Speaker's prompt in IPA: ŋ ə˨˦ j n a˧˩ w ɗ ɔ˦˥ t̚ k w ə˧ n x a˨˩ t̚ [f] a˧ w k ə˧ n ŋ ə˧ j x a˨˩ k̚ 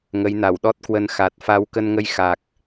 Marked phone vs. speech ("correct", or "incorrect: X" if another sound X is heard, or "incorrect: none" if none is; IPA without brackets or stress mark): correct